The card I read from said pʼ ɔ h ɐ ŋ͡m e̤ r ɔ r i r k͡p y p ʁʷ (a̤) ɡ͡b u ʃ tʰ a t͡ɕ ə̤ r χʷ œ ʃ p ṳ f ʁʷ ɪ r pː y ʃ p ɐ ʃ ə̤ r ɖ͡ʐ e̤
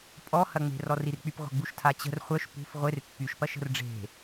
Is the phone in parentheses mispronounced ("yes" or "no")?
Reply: yes